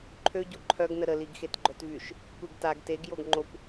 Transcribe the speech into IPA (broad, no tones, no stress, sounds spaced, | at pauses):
ǃʰ ø ɟ o ǃʰ œ ɡ n ə ɾ ə l i ɡ x e t ɡ͡ǃ œ t v y ʃ | kʷ e ɡ t a ɡ t e ɡ j o ɡ ŋ͡ǃ o kʷ